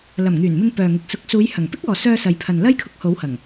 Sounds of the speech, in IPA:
l ɐ˨˩ m ŋ yː˨˩ n m ɪ˧ ŋ p œː˨ ŋ ɪ˨ k̚ s ʊ˨˥ k̚ s uː˨˧ j h ɐ˨˩ ŋ p ɪ˥ k̚ ɔː˨ s œː˧ s ɐ˨ j pʰ ɐ˨ n l ɐ˥ j kʰ ʊ˧ k̚ h o˨˥ w h ɐ˨˩ ŋ

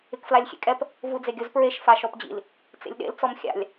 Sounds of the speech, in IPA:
ɪ k f l a lʲ xʲ ḛ kʼ ɛ p | v u d͡z e ɡʲ o z p ɹ e ʃ f a ʃ ɔ p d͡ʑ ḭ l | t͡s ḛ lʲ ɗ ḛ l t͡s ɔ m xʲ a̰ lʲ

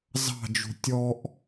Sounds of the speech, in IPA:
z ɑ̤ d͡ʒ ṳ tʲ ɔ ʔ

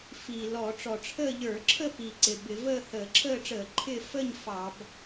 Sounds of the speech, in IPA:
f iː˨˩ l ɔː˧˩˧ ʈ͡ʂ ɔ˨˩ ʈ͡ʂʰ əː˥˧ ʎ ə˞˧˩˧ ǁʰ ə˥˧ p i˨˩ ǀ ɪ˨˩ b ɪ˧˩˧ v əː˥˧ h əː˧˩˧ ǁʰ əː˥˧ ʈ͡ʂ əː˧˩˧ ǃʰ ɪ˥˧ f ə˥˧ ɲ f ɑ˧˩˧ b

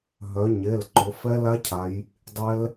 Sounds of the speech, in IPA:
ɦ œ˩˧ ɲ e˩˧˩ l ǃ ʊ˩˧ f ɛ˦˥ l a˦˥ cʰ a˩˧ j | dˤ ɛ˦˥ l

